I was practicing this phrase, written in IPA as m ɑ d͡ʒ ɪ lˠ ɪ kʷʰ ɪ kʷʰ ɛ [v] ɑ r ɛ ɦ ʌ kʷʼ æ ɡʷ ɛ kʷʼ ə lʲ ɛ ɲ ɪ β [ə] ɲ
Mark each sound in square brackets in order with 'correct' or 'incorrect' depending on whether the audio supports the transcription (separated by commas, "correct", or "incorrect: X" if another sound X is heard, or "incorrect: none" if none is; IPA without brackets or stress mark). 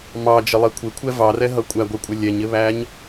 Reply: correct, incorrect: æ